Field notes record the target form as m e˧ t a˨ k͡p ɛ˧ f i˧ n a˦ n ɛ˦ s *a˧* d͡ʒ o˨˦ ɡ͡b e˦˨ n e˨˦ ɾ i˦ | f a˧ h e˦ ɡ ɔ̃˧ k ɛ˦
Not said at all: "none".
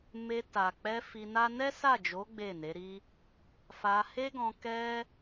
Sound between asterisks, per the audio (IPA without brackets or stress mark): a˦˨